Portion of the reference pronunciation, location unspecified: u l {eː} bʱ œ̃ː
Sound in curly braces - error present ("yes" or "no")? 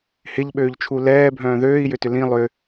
yes